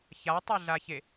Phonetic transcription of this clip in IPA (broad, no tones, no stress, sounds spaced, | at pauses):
ç a tˤ e ɮ a ç e